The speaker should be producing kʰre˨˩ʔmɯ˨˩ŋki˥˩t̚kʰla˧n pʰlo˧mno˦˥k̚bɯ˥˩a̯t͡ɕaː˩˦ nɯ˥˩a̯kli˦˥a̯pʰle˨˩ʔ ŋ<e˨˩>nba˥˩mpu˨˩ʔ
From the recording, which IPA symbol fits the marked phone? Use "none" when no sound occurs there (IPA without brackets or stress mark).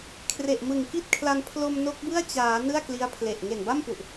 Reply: e˨˩